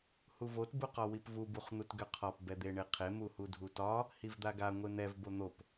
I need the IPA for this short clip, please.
h u v o t b u q ɒ w i p v u b u χ n̪ u t ɡ ø qʰ ɒ p b ɛ d̪ e ɳ e qʰ e m u h u dʱ u t ɒ | h i v d̪ a ɡ a ŋʷ e n̪ ɛ v b o n̪ o p

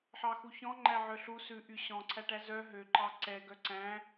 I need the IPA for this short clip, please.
ħ ɑ x u ç ɔ̃ ŋ͡ǃ æ ʕ œ ɬ u s ʉ ʔ y ɕ ɔ̃ ǀʰ æ ʈ æ z œ ɦ ø ǃ ɑ ǀ ɛ ɡ œ ǀ æ̃

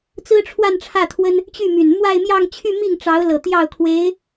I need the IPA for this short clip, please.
t͡s ɹ̩˥ ʈ͡ʂʰ w a˥˧ n ʈ͡ʂʰ ä˥˩ t̪ʰ w ə˥ n | t͡ɕ y˥˩ m y˨˩ n m w a˥˧ ɪ̯ m j ɑ˥˧ ŋ t͡ɕʰ y˥˧ m i˥˩ ŋ ʈ͡ʂ ɑ˧˥ ʊ̯ l ɤ˨˩ t̪ j ɑ˥˩ ʊ̯ kʰ w e˧˥ ɪ̯

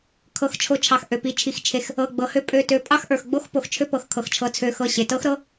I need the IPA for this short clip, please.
kʰ ɤ˩˧ x t͡ʃʰ o˩˧ t͡ʃʰ ɑ˩ x ʔ ø˩ p i˩˧ t͡ʃʰ i˩ x t͡ʃʰ e˩ x | ɤ˩˧˩ ɡ͡b ɤ˩ h ø˦ pʼ ø˩˧˩ t ø˩˧˩ pʼ ɑ˦ x ʔ ə˞˩ x ɡ͡b o˦ x p o˩ x t͡ʃʰ ø˦ p ɤ˩ x kʰ ɤ˩ x t͡ʃʰ ɤ˩˧ t͡sʰ ø˩˧ x ɤ˩˧˩ ɕ e˩ t ɤ˦ x ɾ ɤ˦

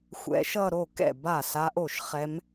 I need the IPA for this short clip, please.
xʷ ɛ̰˧˥ ʃ ʌ˥˧ ɾ o˥˩ k ɛ̰˥˩ b a˥˩ s a˧˥ ʔ o˥˩ ʃ χ ɛ˧˥ m

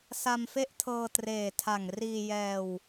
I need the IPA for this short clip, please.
s a˧ m f e˥˩ ʔ tʰ ɤː˧ t r eː˨˩ tʰ a˨˩ ŋ r iː˧ j ɛː˧ w

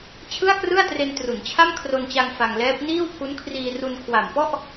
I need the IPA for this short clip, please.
t͡ɕʰ ɯ˥˩ a̯ k r ɯ˥˩ a̯ t r e˧ n t r u˩˦ n t͡ɕʰ a˥˩ m kʰ r o˧ n t͡ɕ a˧ ŋ f a˧ ŋ l ɛː˦˥ p̚ n iː˥˩ w pʰ u˦˥ n kʰ r iː˧ r u˧ n kʰ w a˨˩ m p ɔ˥˩ ʔ

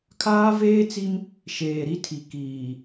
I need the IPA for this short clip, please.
kʰ aː˦ v eː˦ t͡s i˦ m | ʃ eː˨ ɾ i˦ tʰ i˨ k iː˨

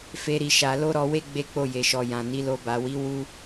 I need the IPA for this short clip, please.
f e˦ ɾ i˧ ʃ a˧ l o˦ ɾ ɔ˧ w e˦ ɡ͡b e˦ k͡p o˦˨ j e˨ ʃ ɔ˨ j ã˨ n i˨˦ l o˧ b a˨ w i˨˦ w u˦

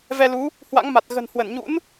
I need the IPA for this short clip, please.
v ɛ˧ l u˨˦ | h w a̰˧˥ ŋ m a˨˩ t̚ ɣ ə̤˨˩ n h w ə˧˩ n ɲ ṵ˧˥ n

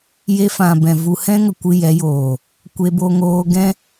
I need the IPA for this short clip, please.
j e˧ f ã˨ b ɛ̃˨ v u˨ h ɛ̃˧ ŋ ə˨ kʷ ɨ˧ j ɛ˨˦ j oː˨ | kʷ e˧ b o˧ ŋ oː˧ ɡ ɛ̃˦

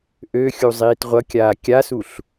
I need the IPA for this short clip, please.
ʔ ø xʲ u zˤ iː t ʁʷ ʌ kʲ aː kʲ a s u ɬ

